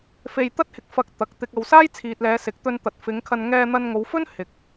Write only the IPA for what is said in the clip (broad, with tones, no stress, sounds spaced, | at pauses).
f e˧ j t̪ ɐ˥ t̚ h ɪ˧ k̚ f ɐ˧ k̚ t̪ ɐ˨ k̚ t̪ ɪ˨ k̚ ɐ˨ w s aː˥ j t͡sʰ iː˨ t̚ l ɛː˨˧ s ɪ˨˥ k̚ t̪ ɵ˧ n t̪ ɐ˨ t̚ f ɪ˨˧ ŋ kʰ ɐ˧ n ŋ ɛː˧ n̪ ɐ˧ n ŋ o˨˧ w f ɵ˥ n h ɪ˧ k̚